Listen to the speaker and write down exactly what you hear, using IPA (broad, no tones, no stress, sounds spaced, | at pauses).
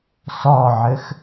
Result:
s ɔ ʕ ɘ x